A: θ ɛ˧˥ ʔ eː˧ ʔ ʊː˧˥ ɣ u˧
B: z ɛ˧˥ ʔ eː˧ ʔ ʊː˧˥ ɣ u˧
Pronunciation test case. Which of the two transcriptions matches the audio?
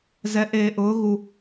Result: B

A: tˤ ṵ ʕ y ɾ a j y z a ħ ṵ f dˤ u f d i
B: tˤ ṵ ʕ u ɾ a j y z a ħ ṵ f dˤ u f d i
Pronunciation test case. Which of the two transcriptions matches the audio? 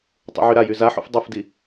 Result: A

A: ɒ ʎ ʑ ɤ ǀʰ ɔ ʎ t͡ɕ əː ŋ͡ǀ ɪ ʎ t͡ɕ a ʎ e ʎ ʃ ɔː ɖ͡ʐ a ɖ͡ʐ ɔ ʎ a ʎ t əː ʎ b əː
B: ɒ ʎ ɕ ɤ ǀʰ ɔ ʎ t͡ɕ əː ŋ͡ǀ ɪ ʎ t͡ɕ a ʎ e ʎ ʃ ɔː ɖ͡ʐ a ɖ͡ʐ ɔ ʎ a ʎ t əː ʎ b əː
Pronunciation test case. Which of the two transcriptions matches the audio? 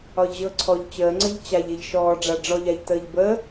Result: A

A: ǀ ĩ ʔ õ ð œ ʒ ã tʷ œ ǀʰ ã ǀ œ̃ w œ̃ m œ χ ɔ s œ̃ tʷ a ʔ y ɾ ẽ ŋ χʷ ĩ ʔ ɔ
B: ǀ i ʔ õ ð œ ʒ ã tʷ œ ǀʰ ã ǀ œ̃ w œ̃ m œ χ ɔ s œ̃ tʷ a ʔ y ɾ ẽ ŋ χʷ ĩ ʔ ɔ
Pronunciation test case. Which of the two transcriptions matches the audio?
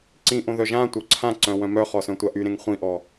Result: A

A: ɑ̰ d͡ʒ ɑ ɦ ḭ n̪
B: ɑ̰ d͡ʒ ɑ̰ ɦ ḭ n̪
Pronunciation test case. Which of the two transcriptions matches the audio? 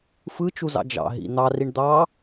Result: B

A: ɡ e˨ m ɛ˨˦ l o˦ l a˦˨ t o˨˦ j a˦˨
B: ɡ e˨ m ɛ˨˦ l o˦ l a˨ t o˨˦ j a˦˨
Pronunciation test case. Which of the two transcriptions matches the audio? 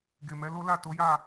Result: A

